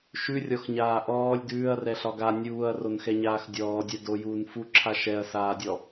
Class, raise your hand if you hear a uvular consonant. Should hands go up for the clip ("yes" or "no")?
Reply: no